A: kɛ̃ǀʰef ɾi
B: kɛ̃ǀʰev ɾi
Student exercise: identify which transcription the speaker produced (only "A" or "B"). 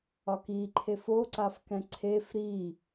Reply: A